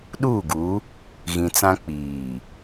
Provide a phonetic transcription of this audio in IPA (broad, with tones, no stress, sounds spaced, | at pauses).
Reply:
ɗ uː˦˨ ɡ u˨˦ | ɣ ĩ˨ t͡s ã˦ k͡p iː˨